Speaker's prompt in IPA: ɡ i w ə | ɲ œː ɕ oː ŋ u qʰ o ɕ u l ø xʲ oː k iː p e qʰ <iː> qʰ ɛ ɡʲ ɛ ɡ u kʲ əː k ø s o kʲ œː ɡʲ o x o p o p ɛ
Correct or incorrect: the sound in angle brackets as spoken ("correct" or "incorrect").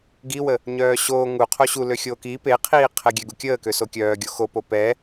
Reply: correct